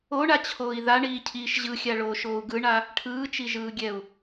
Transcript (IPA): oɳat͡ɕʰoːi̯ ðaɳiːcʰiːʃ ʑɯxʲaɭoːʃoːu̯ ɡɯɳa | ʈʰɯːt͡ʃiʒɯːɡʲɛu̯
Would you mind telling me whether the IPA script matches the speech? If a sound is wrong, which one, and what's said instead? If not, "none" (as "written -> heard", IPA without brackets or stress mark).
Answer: none